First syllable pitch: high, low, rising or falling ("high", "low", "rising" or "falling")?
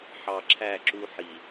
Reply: low